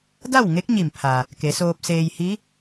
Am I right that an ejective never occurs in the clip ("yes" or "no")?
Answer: yes